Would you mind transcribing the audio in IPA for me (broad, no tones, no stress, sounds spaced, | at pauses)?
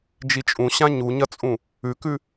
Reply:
d͡ʒ i t͡ʃʼ ũ ɕ ã ɲ u ɲ ɐ t͡sʼ ũ | ʉ k ʉ